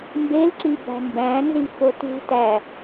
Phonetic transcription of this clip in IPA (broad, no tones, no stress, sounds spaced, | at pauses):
m b e l ǁ i b æ̤ m b æ̃ n z i f o t ṳ t æ